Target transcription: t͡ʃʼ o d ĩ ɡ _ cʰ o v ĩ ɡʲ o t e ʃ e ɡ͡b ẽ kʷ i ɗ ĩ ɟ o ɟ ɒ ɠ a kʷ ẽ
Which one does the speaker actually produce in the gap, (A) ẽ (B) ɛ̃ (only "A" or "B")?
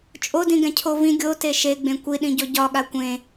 B